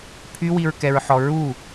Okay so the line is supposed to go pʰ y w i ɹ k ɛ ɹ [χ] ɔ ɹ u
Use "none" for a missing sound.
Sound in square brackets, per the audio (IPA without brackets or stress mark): ħ